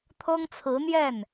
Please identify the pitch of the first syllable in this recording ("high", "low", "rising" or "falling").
high